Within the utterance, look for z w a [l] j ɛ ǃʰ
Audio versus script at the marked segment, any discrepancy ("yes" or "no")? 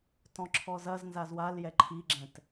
no